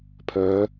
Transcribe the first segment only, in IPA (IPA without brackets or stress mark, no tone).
pʰ